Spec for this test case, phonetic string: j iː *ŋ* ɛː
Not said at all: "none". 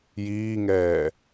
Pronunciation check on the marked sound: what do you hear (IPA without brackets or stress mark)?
ŋ